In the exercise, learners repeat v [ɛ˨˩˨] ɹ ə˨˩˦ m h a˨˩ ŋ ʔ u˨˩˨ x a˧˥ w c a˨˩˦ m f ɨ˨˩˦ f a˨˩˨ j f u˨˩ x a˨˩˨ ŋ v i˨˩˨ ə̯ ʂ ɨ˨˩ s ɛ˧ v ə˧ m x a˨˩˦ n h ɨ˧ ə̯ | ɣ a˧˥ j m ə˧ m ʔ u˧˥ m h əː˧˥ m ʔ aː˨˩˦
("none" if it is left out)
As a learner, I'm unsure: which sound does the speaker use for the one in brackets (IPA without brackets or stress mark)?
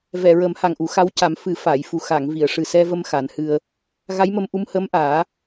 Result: ɛ˨˩˨